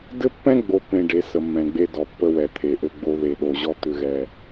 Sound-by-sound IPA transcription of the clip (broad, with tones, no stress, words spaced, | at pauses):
dɘ˦pːɛ̃˦ɡ͡bo˨pːẽ˨ ɖe˨˦ sə˨mːɛ̃˨ɡ͡be˦ dɔ˨pːə˦wɛ˨ t̪ʰe˨ʔɘ˦ɡ͡bo˦ ðe˨ɗo˨ʑɔ˦ t̪ʏ˦ ɣɛ˦